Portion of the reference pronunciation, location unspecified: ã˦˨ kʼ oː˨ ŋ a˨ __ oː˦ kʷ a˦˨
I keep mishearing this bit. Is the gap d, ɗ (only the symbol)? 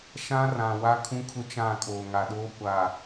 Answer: ɗ